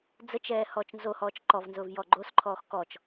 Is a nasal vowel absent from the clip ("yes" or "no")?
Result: yes